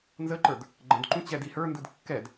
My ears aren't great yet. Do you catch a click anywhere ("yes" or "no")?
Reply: yes